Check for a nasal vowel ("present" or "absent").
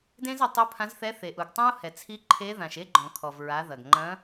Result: present